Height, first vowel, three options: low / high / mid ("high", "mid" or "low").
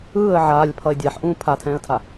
high